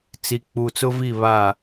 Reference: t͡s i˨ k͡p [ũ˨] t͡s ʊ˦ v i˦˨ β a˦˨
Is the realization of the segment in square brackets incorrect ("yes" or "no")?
yes